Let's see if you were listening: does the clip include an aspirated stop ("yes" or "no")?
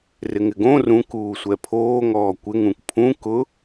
yes